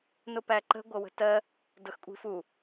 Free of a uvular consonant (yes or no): yes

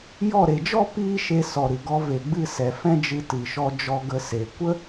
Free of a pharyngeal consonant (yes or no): yes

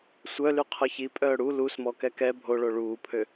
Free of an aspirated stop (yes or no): no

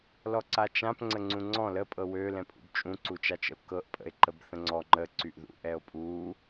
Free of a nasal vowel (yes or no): no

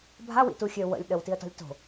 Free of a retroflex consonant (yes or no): yes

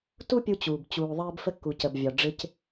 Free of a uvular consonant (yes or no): yes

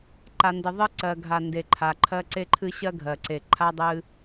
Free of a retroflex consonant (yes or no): yes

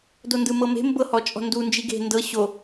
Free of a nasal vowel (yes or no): yes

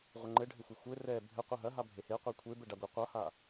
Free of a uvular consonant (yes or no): no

